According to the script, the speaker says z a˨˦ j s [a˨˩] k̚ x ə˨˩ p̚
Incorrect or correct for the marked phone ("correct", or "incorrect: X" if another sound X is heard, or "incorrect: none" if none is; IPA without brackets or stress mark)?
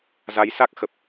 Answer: incorrect: a˦˥